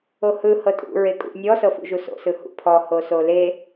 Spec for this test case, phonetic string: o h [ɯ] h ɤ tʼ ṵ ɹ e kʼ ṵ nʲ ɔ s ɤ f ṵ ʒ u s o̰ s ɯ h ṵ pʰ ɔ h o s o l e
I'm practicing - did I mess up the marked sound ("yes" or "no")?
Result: no